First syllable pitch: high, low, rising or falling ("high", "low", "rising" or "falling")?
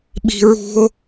high